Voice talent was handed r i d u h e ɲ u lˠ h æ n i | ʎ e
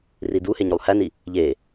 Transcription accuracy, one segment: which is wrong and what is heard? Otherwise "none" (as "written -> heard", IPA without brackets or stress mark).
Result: none